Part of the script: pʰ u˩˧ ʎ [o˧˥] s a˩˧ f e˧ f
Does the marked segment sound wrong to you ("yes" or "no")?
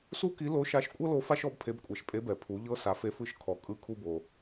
yes